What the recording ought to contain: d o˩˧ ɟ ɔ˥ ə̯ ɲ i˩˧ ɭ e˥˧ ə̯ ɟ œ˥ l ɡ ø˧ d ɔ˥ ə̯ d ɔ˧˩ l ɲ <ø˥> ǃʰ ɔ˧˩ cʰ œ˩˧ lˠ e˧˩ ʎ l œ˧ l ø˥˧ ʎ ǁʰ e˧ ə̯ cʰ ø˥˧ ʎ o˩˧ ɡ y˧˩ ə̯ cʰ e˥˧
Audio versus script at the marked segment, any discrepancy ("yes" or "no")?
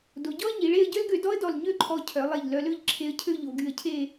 yes